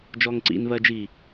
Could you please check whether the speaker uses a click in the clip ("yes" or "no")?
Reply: yes